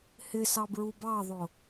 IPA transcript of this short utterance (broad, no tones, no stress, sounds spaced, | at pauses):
h ɪ s ɑ b ɹ u b ɑ ðˤ ʊ